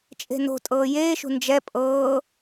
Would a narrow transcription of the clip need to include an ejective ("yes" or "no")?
yes